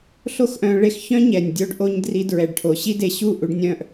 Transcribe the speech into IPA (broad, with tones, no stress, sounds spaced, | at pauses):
ɬ o˦ x ʔ œ̃˧ ɭ e˧ x ç œ̃˦ ɲ ɛ˨ nʲ dʲ o˧ ɖ ʔ o˧ ɲ d r i˧ d ɹ ɛ˨ ɖ ʈʰ o˨ ɕ i˦ d e˨ ɕ u˦˨ ʔ u˧ ɖ nʲ œ̃˧ ʔ